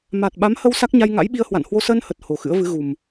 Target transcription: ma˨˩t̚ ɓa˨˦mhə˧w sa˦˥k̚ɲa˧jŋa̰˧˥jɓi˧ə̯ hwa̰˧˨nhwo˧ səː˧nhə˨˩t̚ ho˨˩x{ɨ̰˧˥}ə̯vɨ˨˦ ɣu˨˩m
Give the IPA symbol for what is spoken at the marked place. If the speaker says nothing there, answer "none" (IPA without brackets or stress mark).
ɨ̰˧˥